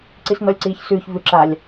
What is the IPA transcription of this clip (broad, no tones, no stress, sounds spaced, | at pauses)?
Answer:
ǀ i s n ɔ lʲ ǀ iː ç s ʉː ç v ʉ ǁ a lʲ